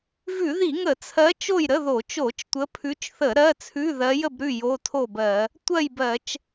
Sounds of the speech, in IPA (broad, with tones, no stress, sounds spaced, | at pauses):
v ʉ˧˩˧ ð i˧˩˧ ŋ ə˧˩˧ t͡sʰ ɜ˨˦ t͡ʃ o˥˨ j ɾ ə˧˥˧ ð o˧˩˧ t͡ʃ o˧˩˧ t͡ʃ tʷ ə˨˦ pʰ ʉ˨˦ t͡ʃ θ ə˧˩˧ ɾ ɜ˧˥˧ t͡sʰ ʉ˧˥˧ ð ɜ˨˦ j ə˥˨ b ɾ ʉ˥˨ j o˧˥˧ tʰ o˥˨ b ɜ˧˩˧ | tʷ ɜ˥˨ j b ɜ˧˩˧ t͡ʃ